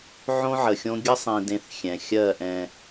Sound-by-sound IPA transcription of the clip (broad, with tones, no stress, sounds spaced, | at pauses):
ʕ õ˦ ʕ ə˨ xʲ õ˦ ɡʲ ə˦ sˤ ĩ˨ d ẽ˦ θ xʲ ɛ̃˨ xʲ ɜ˦˨ ʔ ɛ̃˨